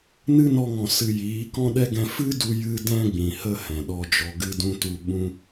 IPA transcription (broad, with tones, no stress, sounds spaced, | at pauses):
n ɨ˦ n ɔ˧ ŋ ɔ̃˨ s ɨ˨ j iː˨˦ k ɔ̃˦ ɗ ɛ˦ ɡ ɛ̃˧ f ɨ˦ d u˧ j ɨ˧ d ɛ̃˧ ɡ͡b ĩ˨ h ə˧ h ɛ̃˨ ɗ ɔ˧ d͡ʒ ɔ˧ ɡ ɨ˧ d ũ˧ t u˧ ɓ ũ˦